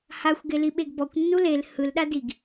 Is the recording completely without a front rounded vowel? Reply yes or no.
yes